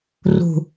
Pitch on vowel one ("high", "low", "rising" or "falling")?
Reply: low